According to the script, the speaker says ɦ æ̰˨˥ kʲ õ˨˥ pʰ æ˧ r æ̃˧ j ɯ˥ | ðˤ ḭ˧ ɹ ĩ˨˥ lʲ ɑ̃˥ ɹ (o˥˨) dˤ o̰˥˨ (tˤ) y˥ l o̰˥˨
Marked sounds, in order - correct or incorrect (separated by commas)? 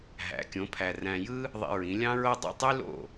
incorrect, correct